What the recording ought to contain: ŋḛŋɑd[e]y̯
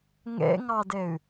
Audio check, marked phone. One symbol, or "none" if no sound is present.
e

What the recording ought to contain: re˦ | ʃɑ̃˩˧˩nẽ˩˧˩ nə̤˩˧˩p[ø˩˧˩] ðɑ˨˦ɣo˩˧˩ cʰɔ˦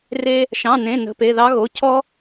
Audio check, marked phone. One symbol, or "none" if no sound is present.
e˩˧˩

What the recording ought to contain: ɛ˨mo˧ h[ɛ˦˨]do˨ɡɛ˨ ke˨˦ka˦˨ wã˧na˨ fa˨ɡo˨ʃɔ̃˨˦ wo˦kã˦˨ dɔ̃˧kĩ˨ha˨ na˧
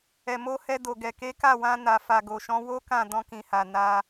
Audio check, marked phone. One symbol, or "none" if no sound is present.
ɛ˧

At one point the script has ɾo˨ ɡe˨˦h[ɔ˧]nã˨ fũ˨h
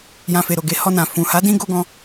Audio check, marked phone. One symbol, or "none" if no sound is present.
ɔ˧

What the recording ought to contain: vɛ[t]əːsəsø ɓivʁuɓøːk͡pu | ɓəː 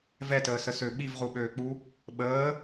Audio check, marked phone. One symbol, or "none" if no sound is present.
t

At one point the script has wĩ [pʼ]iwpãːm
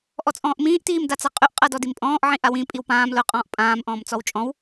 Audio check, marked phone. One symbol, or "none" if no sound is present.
pʼ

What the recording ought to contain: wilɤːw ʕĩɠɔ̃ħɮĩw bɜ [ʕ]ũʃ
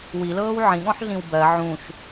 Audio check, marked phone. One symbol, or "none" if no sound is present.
ʕ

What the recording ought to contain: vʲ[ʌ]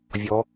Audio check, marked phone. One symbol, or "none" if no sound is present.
ɔ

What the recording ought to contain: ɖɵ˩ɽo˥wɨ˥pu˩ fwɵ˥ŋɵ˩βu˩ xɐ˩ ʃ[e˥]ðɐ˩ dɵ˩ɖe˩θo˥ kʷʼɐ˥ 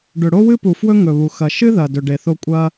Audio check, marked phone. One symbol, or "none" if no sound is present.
ɨ˥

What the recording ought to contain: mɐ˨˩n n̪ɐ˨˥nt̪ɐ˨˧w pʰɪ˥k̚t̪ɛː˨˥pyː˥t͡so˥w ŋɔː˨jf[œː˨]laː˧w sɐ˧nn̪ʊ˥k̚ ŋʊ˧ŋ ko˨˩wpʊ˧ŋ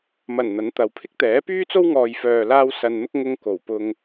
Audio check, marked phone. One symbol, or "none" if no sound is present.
œː˨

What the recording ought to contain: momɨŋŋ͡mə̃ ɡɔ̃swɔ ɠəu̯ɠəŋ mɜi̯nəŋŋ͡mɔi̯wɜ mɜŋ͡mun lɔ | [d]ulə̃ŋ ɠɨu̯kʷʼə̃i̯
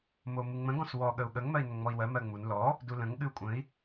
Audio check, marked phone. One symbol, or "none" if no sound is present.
d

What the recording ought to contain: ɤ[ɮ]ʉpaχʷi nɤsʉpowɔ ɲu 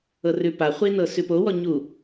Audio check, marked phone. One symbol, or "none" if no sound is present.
r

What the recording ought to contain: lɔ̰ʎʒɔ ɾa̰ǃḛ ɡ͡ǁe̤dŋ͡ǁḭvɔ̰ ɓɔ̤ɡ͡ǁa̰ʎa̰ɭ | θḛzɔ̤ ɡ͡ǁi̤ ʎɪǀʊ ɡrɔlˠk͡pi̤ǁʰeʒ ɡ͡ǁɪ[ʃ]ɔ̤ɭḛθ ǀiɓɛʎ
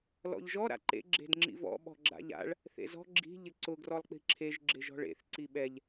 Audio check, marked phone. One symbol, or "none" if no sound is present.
ʒ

